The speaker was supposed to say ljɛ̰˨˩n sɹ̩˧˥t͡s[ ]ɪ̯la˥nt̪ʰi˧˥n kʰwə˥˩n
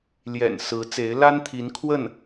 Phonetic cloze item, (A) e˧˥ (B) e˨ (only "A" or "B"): A